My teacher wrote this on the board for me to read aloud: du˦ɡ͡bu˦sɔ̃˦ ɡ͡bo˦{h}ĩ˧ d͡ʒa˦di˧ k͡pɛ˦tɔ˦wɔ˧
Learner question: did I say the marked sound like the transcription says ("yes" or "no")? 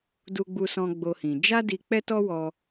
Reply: yes